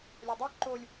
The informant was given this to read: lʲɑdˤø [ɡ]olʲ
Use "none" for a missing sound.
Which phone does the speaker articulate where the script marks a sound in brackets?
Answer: ǃ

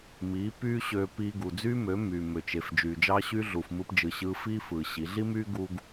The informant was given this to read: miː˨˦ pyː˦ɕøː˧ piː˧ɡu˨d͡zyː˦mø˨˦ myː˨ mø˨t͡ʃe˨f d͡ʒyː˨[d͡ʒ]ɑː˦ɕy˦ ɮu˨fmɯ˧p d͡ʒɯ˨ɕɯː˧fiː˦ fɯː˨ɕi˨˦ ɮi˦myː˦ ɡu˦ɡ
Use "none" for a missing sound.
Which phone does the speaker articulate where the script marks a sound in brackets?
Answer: d͡ʒ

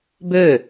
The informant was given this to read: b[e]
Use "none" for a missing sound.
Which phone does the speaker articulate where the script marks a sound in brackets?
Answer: ø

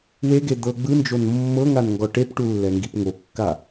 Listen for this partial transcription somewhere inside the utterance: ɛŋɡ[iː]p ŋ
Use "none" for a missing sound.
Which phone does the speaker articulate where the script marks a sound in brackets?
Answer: i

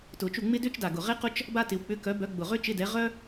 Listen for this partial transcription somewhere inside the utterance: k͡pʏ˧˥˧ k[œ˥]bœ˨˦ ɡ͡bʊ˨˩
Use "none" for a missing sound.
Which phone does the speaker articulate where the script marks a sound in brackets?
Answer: œ˨˦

